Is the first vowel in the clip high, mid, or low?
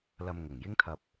low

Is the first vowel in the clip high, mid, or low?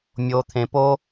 mid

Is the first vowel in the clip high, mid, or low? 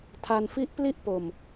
low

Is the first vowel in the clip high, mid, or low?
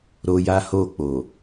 mid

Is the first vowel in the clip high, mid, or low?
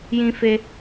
high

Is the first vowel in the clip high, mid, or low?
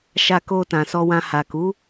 low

